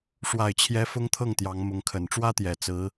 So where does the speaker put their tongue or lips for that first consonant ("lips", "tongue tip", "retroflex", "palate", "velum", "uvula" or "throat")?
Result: retroflex